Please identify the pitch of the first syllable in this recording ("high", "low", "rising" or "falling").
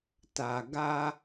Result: low